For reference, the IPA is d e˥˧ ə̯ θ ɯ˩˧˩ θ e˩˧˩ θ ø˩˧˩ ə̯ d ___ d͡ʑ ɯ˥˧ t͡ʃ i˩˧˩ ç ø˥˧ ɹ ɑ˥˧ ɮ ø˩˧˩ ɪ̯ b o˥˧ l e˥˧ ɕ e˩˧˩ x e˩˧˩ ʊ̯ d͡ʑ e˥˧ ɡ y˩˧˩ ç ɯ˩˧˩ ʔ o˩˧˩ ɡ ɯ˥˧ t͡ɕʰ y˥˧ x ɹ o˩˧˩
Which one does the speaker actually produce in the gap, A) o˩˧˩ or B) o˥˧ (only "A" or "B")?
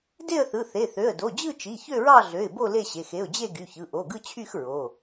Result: A